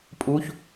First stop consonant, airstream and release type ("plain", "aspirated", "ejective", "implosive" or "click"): ejective